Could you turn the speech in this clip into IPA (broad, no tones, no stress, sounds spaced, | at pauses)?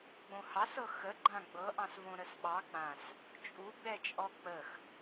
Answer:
ɡ͡b õ h ɑ s ɤ x ə ɡ͡ǃ ã ɡ͡b ɤ ʔ ɑ̃ s v õ ɾ ə s ɓ ɑ k͡p ã s | t͡ʃʼ u ɡ͡b ɛ t͡ʃʼ ɔ k͡p ə x